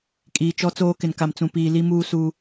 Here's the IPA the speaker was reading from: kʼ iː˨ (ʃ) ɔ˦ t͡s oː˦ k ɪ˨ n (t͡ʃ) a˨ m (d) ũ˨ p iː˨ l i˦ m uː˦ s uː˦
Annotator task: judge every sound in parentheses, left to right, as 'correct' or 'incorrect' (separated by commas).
incorrect, incorrect, incorrect